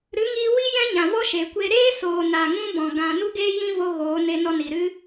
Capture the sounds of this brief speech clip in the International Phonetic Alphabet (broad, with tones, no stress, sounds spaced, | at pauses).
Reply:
ɾ ɨ˨˦ ŋ iː˧ w i˦ j ɛ̃˦ ɲ ã˨ v ɔ˦ ʃ e˨ kʷ e˧ ɾ eː˦ s oː˨ n a˨ ŋ ũ˧ b ɔ̃˨ ɡ ã˧ n u˦ ɡ eː˦ j ĩ˦ v o˧ ɣ oː˨˦ n e˧ n ɔ˧ n i˨ ɾ ɨ˦